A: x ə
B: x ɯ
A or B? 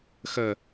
A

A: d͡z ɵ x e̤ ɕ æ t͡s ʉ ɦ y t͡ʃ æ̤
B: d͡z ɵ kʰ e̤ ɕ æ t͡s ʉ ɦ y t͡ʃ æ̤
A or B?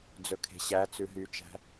B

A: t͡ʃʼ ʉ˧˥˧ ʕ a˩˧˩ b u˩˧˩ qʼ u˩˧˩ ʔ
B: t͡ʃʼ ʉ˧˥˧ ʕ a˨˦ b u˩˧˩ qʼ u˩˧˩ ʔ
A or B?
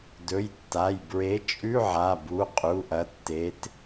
A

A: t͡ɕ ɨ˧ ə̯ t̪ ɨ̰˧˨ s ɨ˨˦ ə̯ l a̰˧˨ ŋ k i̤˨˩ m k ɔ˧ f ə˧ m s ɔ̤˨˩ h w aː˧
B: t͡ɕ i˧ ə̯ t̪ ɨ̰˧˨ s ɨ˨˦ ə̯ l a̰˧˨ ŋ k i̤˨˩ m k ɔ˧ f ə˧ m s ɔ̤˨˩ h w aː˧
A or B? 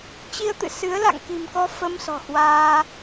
B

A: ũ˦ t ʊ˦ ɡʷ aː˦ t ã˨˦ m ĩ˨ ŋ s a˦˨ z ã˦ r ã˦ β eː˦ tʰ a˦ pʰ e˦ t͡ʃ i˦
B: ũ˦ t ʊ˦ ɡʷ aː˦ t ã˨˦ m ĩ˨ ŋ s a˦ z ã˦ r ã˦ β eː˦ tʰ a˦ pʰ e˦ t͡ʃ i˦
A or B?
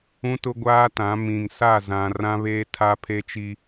A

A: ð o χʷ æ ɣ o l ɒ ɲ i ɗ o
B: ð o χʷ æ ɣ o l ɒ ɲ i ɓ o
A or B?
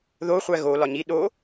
A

